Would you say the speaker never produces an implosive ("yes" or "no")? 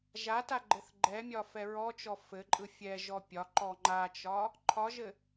yes